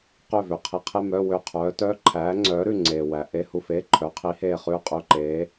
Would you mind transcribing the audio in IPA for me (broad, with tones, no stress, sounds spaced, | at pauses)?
q ø˦˨ v ø˩ qʰ i˨˥ qʰ e˧˥˧ m œ˧˥˧ w ø˦˨ qʰ œː˨˥ t œː˧˥˧ ǃʰ æː˨˥ ŋ͡ǀ œː˨˥ ɾ ʉ˦˨ ŋ͡ǀ eː˩ w æ˩ ʔ e˧˥˧ h u˦˨ f eː˧˥˧ ǃʰ œː˨˥ qʰ i˨˥ h eː˦˨ χ ʉː˦˨ qʼ ø˧˥˧ ǃ eː˨˥